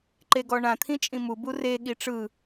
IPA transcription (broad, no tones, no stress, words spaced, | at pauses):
ǃeɡɔɳã t̪ʰĩt͡ʃʼĩmu bure ɠiʈ͡ʂɯ